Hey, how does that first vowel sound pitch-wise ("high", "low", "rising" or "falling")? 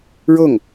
falling